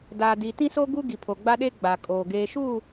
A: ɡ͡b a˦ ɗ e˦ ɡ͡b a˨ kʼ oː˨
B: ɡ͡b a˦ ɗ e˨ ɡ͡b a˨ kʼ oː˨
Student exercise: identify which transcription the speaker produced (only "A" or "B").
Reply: A